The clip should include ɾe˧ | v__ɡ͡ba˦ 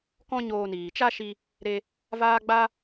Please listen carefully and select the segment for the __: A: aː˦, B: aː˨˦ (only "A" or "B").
A